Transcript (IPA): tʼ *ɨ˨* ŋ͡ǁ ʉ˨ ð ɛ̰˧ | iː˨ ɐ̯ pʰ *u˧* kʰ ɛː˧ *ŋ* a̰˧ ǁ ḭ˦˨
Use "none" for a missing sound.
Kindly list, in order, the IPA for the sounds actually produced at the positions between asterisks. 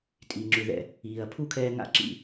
i˨, u˦, ŋ

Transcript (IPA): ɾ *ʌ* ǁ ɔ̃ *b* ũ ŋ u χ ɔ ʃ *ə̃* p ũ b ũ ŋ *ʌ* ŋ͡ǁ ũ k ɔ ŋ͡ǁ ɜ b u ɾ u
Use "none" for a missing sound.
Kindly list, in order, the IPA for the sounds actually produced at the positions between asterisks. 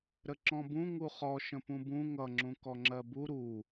ə, b, ə̃, ʌ

